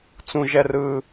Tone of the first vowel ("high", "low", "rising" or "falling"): low